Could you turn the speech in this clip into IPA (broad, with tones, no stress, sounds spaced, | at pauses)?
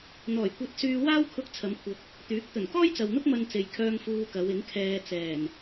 n̪ ɔː˨˩ j kʷ ɐ˧ t̚ s yː˧ w aː˥ w kʰ ʊ˧ k̚ t͡sʰ ɐ˨˧ m kʷʰ ɐ˨ k̚ | t̪ yː˨˥ k̚ t̪ ɵ˨˩ n k ɔː˥ j t͡s ɐ˨ w n̪ ʊ˥ k̚ m ɐ˧ n t͡s e˨ j kʰ œː˧ ŋ f uː˧ k ɐ˨˧ w ɪ˨˥ ŋ kʰ ɛː˧ t͡s ɛː˨˩ n